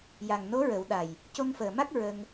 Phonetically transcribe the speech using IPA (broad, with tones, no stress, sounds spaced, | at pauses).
j a˨˩ ŋ n o˧˥ ɹ ə˨˩˦ w ɗ a˨˩ j | c o˧ ŋ f əː˨˩ m a˦˥ k̚ ɹ ə˧ ŋ